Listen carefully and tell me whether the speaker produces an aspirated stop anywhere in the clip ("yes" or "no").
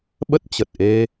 no